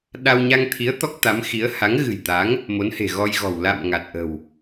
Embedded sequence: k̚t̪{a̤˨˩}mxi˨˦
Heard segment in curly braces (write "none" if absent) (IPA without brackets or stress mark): a˨˦